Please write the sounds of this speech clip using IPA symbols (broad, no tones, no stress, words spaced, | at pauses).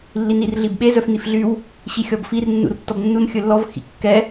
lːinirɮibɓe zœfnifɮyw | ɕixʲɔbfir nːṵrtːɔbnːun xʲɵlːɔv xḭkːɛ